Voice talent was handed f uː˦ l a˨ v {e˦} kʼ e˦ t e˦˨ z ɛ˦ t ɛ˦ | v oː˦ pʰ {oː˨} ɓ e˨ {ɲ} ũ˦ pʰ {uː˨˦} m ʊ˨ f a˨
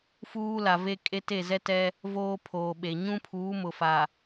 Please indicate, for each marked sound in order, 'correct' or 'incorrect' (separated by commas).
correct, correct, correct, correct